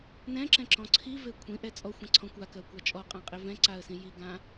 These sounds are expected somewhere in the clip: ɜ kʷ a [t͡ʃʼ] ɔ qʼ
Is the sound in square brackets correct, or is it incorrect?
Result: correct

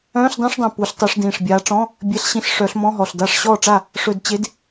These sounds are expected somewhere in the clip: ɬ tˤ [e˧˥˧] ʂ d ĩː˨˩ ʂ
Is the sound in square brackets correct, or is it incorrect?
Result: incorrect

